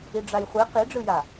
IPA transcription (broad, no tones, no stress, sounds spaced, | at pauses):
i ɖ͡ʐ a j χʷ e q i ɖ͡ʐ ɯ j a